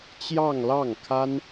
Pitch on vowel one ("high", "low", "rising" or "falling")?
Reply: falling